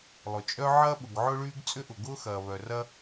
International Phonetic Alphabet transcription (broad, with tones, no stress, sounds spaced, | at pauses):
lˠ ʊ˩ t͡ʃʼ œ˥ ʕ ɐː˥ ɓ ʊ˩ ɡ ʕ ʊ˥ ɭ yː˥ ɡ t͡sʼ ʏ˥ ʔ ʊ˩ ɡ ʊː˥ x ɐː˩ β œ˩ r ɐ˥